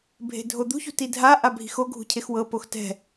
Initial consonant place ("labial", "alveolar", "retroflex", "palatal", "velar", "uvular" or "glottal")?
labial